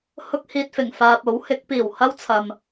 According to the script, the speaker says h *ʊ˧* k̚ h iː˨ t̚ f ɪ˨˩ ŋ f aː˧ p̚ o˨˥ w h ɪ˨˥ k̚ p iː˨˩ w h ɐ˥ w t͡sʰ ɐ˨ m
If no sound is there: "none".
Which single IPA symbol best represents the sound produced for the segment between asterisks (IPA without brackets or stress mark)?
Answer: ʊ˧